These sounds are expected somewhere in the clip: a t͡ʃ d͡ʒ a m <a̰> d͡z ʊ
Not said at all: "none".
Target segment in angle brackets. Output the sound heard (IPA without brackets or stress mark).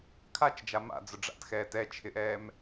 a̰